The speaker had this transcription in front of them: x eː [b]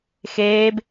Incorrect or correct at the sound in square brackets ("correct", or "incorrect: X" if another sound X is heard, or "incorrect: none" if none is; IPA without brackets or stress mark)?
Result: correct